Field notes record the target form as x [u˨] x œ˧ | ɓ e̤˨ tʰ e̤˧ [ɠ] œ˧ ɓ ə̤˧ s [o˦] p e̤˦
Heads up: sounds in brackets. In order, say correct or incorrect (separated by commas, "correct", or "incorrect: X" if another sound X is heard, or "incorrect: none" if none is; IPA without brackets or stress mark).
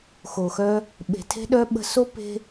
incorrect: o˨, incorrect: ɗ, correct